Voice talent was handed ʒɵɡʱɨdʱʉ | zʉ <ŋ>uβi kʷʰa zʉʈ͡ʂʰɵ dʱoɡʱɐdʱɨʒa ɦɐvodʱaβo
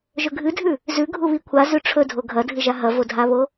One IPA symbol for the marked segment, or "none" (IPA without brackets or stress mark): ɡʱ